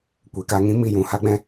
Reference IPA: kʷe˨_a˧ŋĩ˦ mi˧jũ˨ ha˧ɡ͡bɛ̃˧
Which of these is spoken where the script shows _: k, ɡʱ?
k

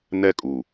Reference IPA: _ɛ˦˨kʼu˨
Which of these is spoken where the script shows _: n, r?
n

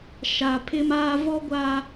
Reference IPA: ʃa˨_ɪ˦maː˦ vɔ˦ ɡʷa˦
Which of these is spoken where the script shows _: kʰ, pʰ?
pʰ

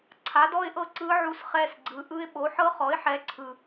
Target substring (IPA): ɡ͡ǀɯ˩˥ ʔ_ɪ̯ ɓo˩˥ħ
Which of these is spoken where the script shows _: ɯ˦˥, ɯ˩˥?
ɯ˦˥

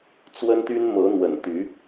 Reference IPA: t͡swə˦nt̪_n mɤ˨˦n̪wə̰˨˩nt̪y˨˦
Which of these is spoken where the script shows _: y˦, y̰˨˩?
y˦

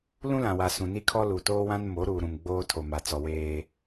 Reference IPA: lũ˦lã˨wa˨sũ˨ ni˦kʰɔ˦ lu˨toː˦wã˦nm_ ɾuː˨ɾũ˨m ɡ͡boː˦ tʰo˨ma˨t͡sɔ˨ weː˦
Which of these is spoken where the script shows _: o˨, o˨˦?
o˨˦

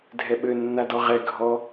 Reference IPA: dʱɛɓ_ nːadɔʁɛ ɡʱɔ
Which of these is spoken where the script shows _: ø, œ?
ø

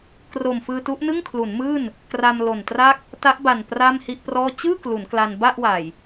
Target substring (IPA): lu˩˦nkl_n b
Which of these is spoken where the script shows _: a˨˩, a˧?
a˧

